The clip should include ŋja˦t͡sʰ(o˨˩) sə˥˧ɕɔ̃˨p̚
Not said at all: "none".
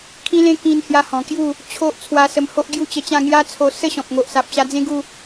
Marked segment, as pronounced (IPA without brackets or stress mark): o˧